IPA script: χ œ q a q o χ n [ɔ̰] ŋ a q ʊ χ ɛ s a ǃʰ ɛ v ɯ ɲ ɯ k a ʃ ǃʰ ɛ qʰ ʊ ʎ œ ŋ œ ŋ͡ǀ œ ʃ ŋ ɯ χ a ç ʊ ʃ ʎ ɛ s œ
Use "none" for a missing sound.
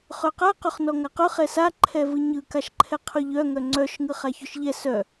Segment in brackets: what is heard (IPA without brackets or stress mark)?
ɔ